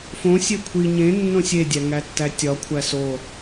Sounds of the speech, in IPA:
f õ sʲ e kʷʰ i ɲ ẽ nː õ sʲ e dʲ æ ŋ æ tː æ tʲ ɒ kʷʰ æ s o

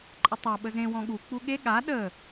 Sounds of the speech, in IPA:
ǃʼ ə tˤ a ɓ ə z ẽ w ɔ̃ ɠ u k͡p u ɠ e ɠ a ɗ ə

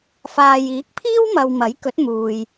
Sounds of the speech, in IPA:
f aː˨ j iː˨˥ k̚ pʰ iː˥ w m ɐ˨ w m ɐ˨˥ j k ɵ˨˥ t̚ m uː˨ j

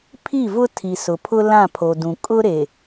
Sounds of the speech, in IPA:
pʰ i˦˨ v ʊ˦ tʰ i˨ s ʊ˨ pʰ ʊ˦ l ã˦˨ pʰ o˨ d ũ˨ kʼ ʊ˦ ɾ e˨

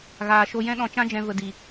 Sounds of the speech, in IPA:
ɣ aː˨ ʃ o˧ j ɛ̃˦ ɗ ɔ̃˧ t͡ʃ ã˦ d͡ʒ ɛ̃˧ v ə˨ d i˨

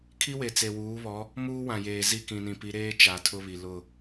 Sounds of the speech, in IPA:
kʰ i˦ w e˨ t͡s e˨ w uː˨˦ β ɔ˨˦ | m uː˦ w ã˨ j eː˨ z i˦˨ k ĩ˨ n ĩ˨ p i˨˦ ɾ eː˦ t͡ʃ a˨ tʰ ʊ˦ β i˨ l ʊ˦˨

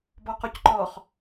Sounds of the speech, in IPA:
b ɔ q ɔ c ǃ ɔ χ

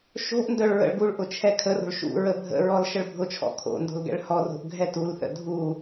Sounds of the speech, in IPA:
ʃ o̤ ʔ n d œ ɭ ɹ ə̰ ɭ ɡ u ɭ ʔ ʊ t͡ʃʰ ɛ kʰ ə r o̤ ɭ ʃ ṵ ɹ ə bʱ ə̰ ɹ ɔ l ʃ ə ɭ bʱ ʊ t͡ʃʰ ɔ̰ kʰ o̰ n d o̤ l ɡ ɛ̰ ɭ h ɔ r o̤ ʔ ɡʱ ɛ t u l θ ə̰ dʱ u

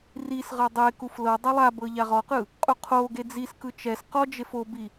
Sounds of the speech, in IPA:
r i s ʁ ɤ dˤ e k u f l ɤ dˤ ɛ lˠ a b ɤ ʎ a ʁ ɔ q ɯ | qʼ u qʰ o ɡ e d͡z i s k ɯ t͡ʃ ɛ s q ɔ d͡ʒ e f o b i

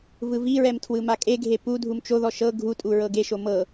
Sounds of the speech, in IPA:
v ɯ v i ɹ ɛ m tʰ w ɯ m a kʼ e ɡʱ e p u dʱ u m t͡ʃ o ð ɔ ʃ ɤ ɡʱ u tʼ u ɹ ɤ ɡ e ʃ o m ɤ

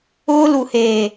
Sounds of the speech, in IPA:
ʊː˦ l u˨ h eː˨

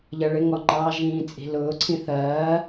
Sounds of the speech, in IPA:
ʎ ɜ ɭ ɪ ŋ ɔ ŋ͡ǃ ɑ ʒ ĩː t͡sʼ i̤ l ʊː ǀʰ ĩ θ ɜː

